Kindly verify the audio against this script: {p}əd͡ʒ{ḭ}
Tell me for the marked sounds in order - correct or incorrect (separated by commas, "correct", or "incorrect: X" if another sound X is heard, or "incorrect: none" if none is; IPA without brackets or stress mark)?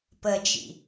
correct, correct